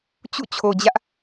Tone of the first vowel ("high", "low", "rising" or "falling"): falling